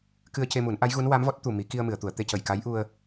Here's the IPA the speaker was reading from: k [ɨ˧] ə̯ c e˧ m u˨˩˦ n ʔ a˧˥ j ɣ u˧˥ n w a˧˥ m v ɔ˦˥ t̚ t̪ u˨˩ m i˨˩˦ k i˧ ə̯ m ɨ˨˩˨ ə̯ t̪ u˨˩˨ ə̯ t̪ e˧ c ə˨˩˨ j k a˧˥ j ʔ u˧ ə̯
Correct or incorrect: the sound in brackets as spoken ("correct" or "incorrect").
correct